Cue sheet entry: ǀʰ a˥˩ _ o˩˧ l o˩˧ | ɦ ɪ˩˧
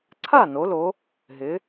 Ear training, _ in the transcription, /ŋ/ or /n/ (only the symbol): n